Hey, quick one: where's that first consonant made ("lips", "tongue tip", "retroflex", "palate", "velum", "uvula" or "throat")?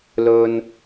tongue tip